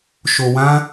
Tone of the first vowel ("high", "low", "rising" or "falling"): low